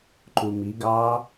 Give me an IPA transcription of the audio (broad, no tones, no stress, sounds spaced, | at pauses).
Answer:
ǃ u m i ɡ ɑː